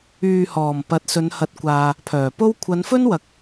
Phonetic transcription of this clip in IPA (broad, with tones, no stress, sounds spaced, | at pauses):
yː˨ h ɔː˨˩ m p ɐ˨˥ t̚ s ɵ˨˧ n h ɐ˨˥ t̚ kʷ aː˨ | pʰ œː˨˩ p o˥ w kʷʰ ɐ˨˧ n f ɵ˥ n w ɐ˨˥ k̚